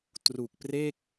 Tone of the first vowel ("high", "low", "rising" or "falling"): low